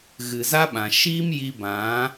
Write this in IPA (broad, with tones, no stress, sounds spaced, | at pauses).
ɣ ɨ˨ z a˦ ɓ ã˨ ʃ iː˦ m j i˧ b ã˨˦